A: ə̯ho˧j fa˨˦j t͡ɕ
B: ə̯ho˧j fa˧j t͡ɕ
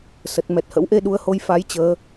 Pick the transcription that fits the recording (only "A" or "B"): A